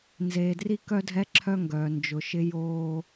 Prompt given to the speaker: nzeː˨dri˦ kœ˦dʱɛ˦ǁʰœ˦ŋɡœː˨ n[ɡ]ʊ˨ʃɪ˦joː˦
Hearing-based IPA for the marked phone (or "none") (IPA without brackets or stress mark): d͡ʒ